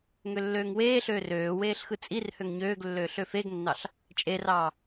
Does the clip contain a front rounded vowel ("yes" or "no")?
yes